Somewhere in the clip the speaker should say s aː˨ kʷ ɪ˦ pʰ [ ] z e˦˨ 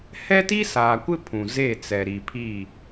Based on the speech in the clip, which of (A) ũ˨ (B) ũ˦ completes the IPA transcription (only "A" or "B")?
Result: A